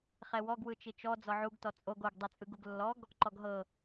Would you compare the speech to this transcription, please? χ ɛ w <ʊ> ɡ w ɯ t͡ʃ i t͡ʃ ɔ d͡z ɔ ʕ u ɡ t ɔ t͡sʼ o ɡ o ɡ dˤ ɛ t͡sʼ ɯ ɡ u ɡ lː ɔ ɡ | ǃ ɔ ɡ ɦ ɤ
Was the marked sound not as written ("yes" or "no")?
yes